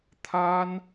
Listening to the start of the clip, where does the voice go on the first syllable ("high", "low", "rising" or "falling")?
high